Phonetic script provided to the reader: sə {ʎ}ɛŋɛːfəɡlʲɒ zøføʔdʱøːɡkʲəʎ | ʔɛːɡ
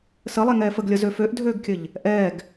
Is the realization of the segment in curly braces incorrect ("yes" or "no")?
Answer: yes